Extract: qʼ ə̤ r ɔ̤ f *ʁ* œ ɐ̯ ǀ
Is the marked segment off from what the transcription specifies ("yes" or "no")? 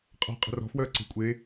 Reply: yes